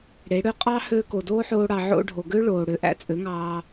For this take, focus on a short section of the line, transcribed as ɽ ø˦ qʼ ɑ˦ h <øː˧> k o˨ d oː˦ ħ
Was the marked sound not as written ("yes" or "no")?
no